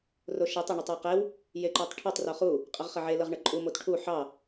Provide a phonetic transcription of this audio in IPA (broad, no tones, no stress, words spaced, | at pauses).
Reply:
roʃetˤ ɑɳotˤjeqew | jeǃotˤʈʰotˤ roχu | qʼəʁχəʕe lɤʁɳɤǃʼu motʈʰu ħɑ